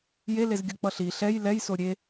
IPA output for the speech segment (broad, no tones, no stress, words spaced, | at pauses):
jelezɡʲok͡pʌ ɬi ɬɛj lɛjso ɾʲe